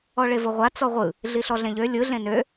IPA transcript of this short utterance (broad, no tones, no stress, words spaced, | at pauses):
ɔɭevɤʁʷa t͡sɔʁʷɯ | ɮiɬɔɮẽʎø lʲɯ ɮẽnø